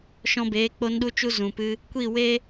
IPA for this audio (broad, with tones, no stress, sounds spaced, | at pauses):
ʃ ɔ̃˧ b eː˨˦ k͡p o˧ n ɗ u˧ t͡ʃ u˧ z ũ˨ p ɨ˧ | kʷ i˦˨ w e˦